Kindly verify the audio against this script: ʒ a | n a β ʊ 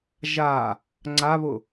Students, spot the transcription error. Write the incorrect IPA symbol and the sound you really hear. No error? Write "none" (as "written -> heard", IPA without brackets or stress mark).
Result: n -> ŋ͡ǀ